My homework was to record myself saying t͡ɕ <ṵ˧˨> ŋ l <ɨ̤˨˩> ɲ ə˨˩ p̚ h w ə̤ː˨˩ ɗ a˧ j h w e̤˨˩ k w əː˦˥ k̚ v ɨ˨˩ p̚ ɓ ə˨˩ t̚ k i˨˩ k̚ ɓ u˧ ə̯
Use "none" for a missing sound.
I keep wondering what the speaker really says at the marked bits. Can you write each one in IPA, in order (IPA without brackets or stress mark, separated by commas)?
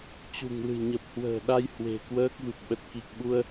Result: ṳ˨˩, ɨ̤˨˩